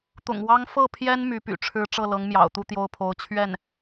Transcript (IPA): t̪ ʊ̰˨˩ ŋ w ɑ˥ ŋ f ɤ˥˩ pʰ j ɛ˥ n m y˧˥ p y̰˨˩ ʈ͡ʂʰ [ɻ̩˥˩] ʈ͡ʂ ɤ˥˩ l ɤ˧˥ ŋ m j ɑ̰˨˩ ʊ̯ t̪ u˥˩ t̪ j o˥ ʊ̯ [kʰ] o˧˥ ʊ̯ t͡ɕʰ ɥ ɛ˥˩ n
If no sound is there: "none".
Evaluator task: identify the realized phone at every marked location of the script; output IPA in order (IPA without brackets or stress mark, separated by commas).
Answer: ɻ̩˥, pʰ